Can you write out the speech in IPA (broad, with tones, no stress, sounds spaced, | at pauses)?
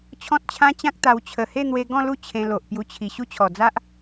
t͡ɕʰ ɔ̃˦ t̚ t͡ɕʰ ã˦ t͡ɕ ã˦ k̚ t̪ a˧ w t͡ɕʰ ə˨˩ h e˥˧ n̪ w e˧ ɡ ɔ̃˥˧ l u˥˧ t͡ɕʰ ẽ˧ l o˨ ʔ p j u˧ t͡ɕʰ i˨˩ ɕ u˦ t͡ɕʰ ɔ˨˩ d͡z a˦ ʔ